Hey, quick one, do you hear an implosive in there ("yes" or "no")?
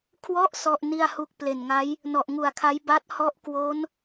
no